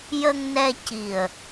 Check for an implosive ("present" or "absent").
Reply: absent